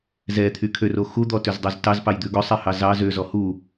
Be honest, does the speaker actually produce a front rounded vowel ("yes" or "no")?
yes